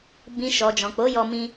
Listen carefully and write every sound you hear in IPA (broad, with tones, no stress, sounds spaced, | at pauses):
b ĩ˨ ʃ ɔ˨ d͡ʒ ɔ̃˨ k͡p o˨˦ j ɔ˧ m ĩ˧